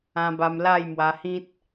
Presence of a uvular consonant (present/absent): absent